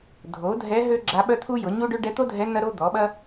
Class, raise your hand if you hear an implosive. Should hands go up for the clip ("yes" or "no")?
yes